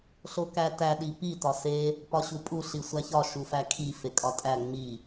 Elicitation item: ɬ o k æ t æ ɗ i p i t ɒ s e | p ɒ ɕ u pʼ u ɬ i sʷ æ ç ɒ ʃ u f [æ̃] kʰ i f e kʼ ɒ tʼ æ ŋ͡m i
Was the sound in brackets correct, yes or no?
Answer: no